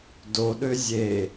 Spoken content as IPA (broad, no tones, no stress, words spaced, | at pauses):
doɗø zʲe